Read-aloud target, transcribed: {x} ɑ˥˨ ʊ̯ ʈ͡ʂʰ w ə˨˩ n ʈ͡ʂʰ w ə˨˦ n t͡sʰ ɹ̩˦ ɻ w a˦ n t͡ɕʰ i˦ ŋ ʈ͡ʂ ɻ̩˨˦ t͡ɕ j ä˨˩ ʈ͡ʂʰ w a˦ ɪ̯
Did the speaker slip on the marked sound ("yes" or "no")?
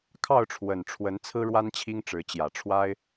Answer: yes